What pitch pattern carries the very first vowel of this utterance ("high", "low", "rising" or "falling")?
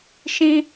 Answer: high